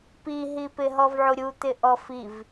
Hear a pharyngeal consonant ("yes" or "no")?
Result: yes